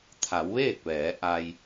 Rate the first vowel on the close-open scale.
open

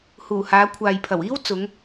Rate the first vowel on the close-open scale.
close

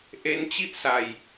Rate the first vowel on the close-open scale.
mid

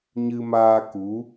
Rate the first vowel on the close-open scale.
close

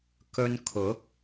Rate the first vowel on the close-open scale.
mid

